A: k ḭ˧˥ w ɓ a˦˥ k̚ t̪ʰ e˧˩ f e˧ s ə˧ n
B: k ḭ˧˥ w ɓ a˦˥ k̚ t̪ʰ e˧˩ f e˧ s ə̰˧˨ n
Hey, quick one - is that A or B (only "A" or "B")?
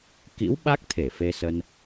A